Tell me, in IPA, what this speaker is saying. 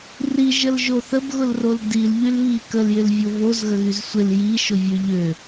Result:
r i ʒ ə l ʒ o θ ə b ɣ ʊ l r o l d i l ʎ y l β i k ə l j ɪ l vʲ ʊ v o z ɣ ə ɣ y z sʷ ɪ l j i ʃ ʊ vʲ ø ʎ ø

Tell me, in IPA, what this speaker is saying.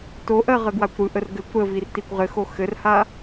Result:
t o ʔ ɜ ʁ ə ɡ w a kʷ ɾ ɯ ʔ ə r ɡ ɘ kʷ ɾ ə v i r t i kʷ ʁ ɘ x o x ɘ r h a

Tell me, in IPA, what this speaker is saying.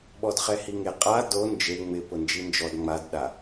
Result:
ɓ ɔ d χ ɛ h i ŋ e qʼ a d o n d͡ʒ e ŋ͡m ɪ p ʊ n d͡ʒ i n d͡ʒ ɔ d ŋ͡m a d ɗ a

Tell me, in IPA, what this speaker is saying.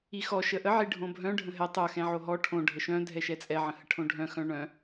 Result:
i x ɔ ʃ ə ʔ ə ʕ i ɖʱ õ bʱ œ̃ ɖʱ ə̃ ɦ ɛ tˤ œ x ɛ̃ ʕ o ɦ ɔ ʈʰ õ ɖʱ ə ʃ œ̃ dʱ ɛ ʃ ɛ t͡sʼ ɛ ʕ ə̃ h ə ʈʰ õ ɖʱ œ̃ x œ̃ ɳ œ̃

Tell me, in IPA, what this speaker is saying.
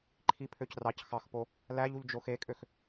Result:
ǃʰ i pʰ ø c r ɑ c x ɑ x p o | l æ ʎ u ʎ d͡ʒ o x e kʼ ø x

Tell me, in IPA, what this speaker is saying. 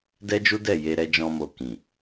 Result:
d ɛ˦ d͡ʒ u˦ d ɛ˦˨ j e˧ ɾ ɛ˧ d͡ʒ ɔ̃˧ m o˨ k ĩ˨

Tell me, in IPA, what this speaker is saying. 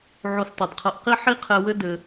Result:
ʕ o˧ s tˤ ɨ˨ d qʰ ɐ˧ ʔ q i˦ ħ i˦ qʰ ɛ˧ w ɘ˦ d ɘ˧

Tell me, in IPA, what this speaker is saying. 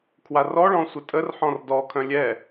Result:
kʰ w a r ɔ ɭ ɔ̃ sʷ ə tʼ ə r ħ ɔ̃ r d ɔ kʰ œ̃ lʲ ɛ

